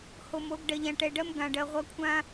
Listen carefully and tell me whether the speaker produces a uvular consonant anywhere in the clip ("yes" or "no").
yes